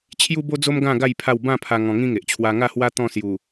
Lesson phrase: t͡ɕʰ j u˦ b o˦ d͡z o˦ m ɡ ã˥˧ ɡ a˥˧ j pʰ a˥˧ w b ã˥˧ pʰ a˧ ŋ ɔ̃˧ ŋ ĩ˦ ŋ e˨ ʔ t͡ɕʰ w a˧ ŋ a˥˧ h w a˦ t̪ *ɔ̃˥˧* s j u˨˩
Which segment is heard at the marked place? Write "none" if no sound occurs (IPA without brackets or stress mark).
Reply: ɔ̃˥˧